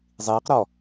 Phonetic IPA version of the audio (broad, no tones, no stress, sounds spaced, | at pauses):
zˤ iː q ɾ ɔ